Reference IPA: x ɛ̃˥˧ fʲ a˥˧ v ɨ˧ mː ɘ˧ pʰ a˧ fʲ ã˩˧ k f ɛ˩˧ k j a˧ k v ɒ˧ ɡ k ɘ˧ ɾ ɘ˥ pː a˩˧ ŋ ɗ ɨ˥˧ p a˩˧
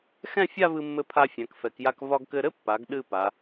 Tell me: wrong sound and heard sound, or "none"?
ŋ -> ɡ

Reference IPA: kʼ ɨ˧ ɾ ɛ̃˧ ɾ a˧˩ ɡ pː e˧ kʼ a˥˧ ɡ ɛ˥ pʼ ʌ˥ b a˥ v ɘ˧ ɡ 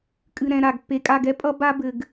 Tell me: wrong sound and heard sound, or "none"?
v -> b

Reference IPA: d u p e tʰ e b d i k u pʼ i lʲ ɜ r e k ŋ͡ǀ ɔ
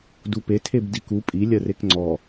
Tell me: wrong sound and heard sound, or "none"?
none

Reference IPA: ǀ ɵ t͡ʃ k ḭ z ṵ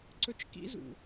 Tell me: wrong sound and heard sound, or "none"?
none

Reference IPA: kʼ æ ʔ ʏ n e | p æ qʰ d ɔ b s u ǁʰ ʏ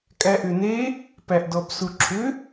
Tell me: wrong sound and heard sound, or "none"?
qʰ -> ʔ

